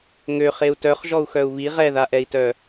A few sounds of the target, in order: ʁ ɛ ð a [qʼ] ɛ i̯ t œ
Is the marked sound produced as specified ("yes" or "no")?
no